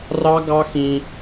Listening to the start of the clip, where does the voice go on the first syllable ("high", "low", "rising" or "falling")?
high